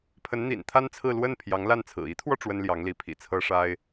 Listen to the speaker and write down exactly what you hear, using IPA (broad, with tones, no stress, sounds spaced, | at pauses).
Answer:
pʰ ə˧˥ n n̪ ḭ˨˩ n t̪ʰ a˥ n t͡sʰ ɹ̩˥˧ l w ə˥˩ n pʰ j ɑ˧˥ ŋ l a˥˩ n t͡sʰ ɹ̩˨˩ i˧˥ t̪ʰ w ɔ˧ ʈ͡ʂ w ə˥ n l j ɑ˧˥ ŋ l i˧˥ pʰ ḭ˨˩ t͡sʰ ɤ˥ ʂ a˥ ɪ̯